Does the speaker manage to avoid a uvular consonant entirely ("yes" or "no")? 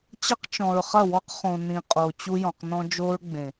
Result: no